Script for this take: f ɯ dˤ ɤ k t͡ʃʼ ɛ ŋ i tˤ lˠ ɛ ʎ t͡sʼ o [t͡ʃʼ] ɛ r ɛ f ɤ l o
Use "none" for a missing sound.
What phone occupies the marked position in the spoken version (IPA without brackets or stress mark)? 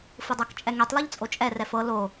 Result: t͡ʃʼ